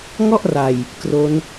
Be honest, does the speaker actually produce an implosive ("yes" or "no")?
no